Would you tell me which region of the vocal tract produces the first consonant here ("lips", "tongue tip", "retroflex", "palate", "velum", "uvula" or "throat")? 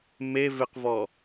lips